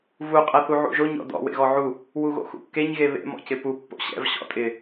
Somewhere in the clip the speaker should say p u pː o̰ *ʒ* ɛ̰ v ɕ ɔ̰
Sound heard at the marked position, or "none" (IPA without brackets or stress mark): ɕ